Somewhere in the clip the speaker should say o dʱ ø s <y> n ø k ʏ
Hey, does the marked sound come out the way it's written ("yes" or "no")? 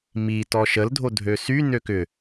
yes